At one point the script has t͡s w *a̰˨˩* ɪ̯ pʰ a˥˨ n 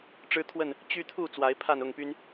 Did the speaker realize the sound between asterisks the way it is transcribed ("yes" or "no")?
no